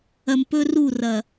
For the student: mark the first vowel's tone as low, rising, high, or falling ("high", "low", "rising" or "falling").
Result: low